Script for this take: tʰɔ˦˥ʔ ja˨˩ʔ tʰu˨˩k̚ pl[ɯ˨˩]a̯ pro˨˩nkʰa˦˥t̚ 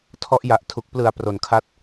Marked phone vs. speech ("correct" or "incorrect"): correct